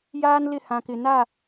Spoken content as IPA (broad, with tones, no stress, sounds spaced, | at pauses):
j aː˦ n l ɪ˦˨ h ã˨ k ɪ˨ n a˦˨